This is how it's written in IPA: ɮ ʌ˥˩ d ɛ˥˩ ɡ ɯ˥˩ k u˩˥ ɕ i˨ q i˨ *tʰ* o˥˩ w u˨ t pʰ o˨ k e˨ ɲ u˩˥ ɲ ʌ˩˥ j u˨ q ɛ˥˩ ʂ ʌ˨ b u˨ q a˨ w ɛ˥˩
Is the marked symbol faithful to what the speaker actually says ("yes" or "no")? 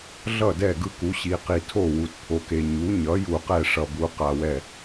yes